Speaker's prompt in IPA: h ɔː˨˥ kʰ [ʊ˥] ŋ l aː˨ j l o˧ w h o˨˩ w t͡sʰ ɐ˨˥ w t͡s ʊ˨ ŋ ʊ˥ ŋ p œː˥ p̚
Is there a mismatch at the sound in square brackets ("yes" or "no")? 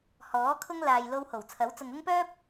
no